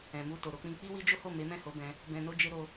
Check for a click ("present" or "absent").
absent